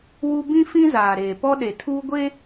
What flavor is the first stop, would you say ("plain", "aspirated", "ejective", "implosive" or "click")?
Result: plain